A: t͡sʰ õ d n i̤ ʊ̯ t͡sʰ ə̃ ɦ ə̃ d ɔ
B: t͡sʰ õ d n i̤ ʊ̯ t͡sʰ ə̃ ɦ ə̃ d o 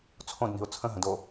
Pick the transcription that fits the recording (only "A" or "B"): B